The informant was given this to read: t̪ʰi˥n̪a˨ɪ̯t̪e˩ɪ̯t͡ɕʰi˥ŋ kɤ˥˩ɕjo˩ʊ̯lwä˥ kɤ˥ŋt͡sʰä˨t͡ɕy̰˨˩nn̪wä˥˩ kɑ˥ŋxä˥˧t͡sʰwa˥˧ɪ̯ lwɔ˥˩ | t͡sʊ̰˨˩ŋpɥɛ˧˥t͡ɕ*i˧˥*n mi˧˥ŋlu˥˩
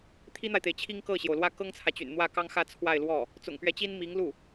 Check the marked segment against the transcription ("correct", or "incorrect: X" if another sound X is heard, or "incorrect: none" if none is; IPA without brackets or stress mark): incorrect: i˥